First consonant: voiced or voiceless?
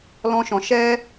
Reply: voiced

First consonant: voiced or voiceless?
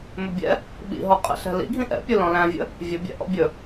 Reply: voiced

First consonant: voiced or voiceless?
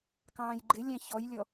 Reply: voiceless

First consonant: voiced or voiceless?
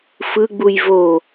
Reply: voiceless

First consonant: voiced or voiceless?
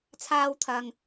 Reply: voiceless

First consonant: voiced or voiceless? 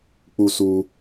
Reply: voiceless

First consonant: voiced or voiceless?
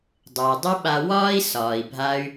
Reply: voiced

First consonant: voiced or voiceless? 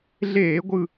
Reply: voiced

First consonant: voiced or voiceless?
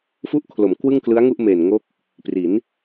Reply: voiceless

